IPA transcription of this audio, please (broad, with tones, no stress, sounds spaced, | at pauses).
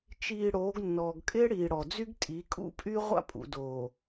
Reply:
t͡ʃ iː˨ ɽ oː˨˦ ɡ nː ɔː˨ ɡ kʼ ɪː˦ ɽ iː˨ ɽ ɔ˨ d͡z y˦ ɡ tʼ i˨˦ kʼ ṵ˦ pʼ y˦ ʁʷ a̰˦ pʼ ṵ˨ d oː˨